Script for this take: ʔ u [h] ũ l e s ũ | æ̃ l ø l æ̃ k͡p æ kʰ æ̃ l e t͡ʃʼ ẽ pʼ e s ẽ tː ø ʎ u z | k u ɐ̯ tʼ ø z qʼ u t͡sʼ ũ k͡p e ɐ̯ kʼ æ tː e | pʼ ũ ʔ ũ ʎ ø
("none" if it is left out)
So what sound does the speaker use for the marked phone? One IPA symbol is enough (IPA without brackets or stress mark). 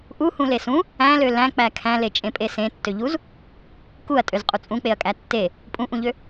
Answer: h